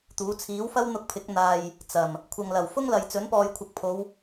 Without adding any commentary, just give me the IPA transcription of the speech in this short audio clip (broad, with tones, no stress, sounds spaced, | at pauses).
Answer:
t̪ uː˨˥ t͡sʰ iː˨˥ w f ɐ˥ w n̪ ʊ˧ k̚ pʰ ɪ˨˥ k̚ n̪ aː˨ j | t͡s ɐ˨˩ m | kʷʰ ɐ˨ ŋ l ɐ˨˩ w f ʊ˥ ŋ l ɐ˨ j t͡s ɵ˨˥ n p ɔː˨ j kʷʰ ɪ˨ k̚ pʰ o˨˧ w